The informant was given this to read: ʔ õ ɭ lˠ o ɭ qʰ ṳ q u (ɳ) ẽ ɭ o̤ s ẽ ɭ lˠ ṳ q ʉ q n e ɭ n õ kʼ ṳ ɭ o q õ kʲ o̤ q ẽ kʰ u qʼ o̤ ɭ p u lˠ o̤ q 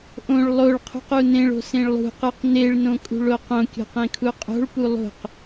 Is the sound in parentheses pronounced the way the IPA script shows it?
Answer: no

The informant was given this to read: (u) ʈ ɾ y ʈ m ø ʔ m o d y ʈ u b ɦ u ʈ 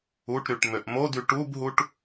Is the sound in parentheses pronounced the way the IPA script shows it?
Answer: yes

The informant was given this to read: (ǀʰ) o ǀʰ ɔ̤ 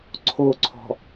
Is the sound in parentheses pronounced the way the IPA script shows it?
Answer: yes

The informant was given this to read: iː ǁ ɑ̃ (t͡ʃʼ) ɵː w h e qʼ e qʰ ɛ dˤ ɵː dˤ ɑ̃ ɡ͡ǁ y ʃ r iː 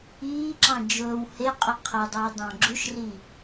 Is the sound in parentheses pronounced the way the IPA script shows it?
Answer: no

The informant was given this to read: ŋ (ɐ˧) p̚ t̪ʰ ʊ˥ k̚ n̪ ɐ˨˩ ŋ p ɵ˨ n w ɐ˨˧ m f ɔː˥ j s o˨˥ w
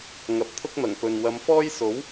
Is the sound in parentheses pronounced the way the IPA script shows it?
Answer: no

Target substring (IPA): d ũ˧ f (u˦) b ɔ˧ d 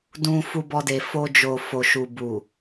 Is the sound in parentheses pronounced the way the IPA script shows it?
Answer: no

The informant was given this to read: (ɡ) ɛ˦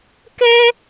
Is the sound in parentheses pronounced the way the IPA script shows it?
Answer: no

